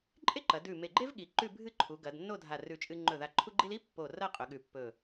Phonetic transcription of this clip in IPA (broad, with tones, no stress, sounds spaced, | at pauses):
ǃʼ e˥ ǃ ɐ˩˧ d ʉ˧˩ m e˧˩ ɡ͡ǃ e˥ v ɠ i˩˧ ǃ ʉ˥˧ bʱ ɨ˥˧ ǃʰ u˩˧ ɡ ɐ˩˧ d nː o˥˧ dʱ a˧˩ r ʉ˧˩ t͡ʃʼ ɨ˧ ŋ͡ǃ ɵ˧˩ ð a˧˩ ǃʰ u˥ ɡ͡ǃ i˥ l i˥ pː o˧˩ r ɐ˥˧ qʼ ɵ˩˧ ɠ ʉ˧˩ pː ɵ˧˩